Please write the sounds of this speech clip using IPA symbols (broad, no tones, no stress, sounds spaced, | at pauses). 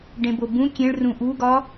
ɖ ẽ b o b ũ kʲ ẽ ɭ r ũ ʔ u ɡ ɒ